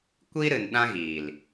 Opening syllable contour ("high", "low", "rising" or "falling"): high